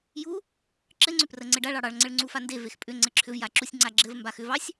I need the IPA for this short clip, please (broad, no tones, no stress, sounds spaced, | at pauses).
j u | ǁ ɘ ŋ͡ǀ ʏ p r ə ŋ͡ǀ ɘ ɖ a ɭ ɑ ɽ ɑ ɭ ŋ͡ǀ ɘ ɭ ŋ͡ǀ u f a n d e v e x pʼ ʏ ŋ͡ǀ ɘ ǁʰ ʏ v j a ǁ u sʲ ŋ͡ǀ a ɡ͡ǁ ɘ v m b a x ʏ v ɑ sʲ